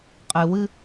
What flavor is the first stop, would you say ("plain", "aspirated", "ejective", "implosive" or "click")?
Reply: ejective